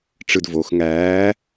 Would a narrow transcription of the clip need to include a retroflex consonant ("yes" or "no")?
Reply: yes